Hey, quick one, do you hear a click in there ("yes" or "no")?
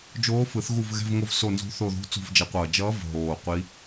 no